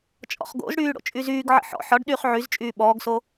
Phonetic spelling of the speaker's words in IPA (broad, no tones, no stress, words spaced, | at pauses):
t͡ʃʼɔ̰χɡo̰zɽyː ɽo̰t͡ʃʼyzyːɡʕə̰ ħɔ̰ ħɒɖ ɗyːχʕyzt͡ʃʼyː ɓɔːɡso